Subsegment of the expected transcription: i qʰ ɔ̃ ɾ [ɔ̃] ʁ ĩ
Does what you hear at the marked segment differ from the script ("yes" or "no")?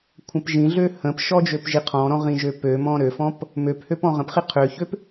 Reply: no